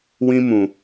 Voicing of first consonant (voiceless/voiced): voiced